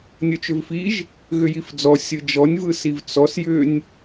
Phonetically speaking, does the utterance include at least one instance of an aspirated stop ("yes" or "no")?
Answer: no